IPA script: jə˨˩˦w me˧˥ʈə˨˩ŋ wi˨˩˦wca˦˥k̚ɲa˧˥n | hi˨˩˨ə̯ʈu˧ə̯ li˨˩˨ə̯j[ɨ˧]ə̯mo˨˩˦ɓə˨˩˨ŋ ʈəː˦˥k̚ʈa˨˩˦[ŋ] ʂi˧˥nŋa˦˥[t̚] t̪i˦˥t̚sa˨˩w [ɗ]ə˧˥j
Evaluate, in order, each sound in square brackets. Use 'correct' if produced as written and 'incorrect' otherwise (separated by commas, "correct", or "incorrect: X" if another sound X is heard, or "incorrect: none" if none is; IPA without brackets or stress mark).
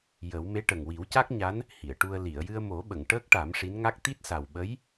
correct, incorrect: m, incorrect: k̚, incorrect: ɓ